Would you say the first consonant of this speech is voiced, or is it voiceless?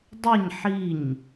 voiced